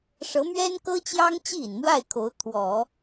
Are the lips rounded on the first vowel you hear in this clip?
no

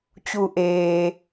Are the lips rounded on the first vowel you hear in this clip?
yes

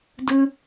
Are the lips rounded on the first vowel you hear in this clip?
no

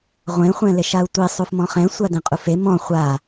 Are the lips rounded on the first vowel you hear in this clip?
no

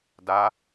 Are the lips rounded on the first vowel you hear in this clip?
no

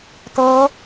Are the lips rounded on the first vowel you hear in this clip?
no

